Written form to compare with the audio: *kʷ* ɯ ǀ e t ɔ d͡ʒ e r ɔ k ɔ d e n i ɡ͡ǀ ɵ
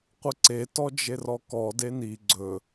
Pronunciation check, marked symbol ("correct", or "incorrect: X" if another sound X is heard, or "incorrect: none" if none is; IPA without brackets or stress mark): incorrect: qʷ